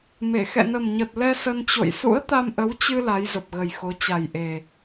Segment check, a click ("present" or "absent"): absent